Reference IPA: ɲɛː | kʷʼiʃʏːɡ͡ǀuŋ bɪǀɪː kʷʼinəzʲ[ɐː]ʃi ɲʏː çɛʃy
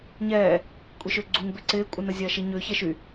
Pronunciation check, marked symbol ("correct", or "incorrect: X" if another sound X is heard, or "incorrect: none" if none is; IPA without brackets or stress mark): correct